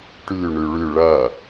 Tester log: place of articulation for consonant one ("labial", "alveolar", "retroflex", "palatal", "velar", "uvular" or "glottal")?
retroflex